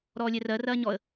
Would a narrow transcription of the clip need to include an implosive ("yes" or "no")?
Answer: no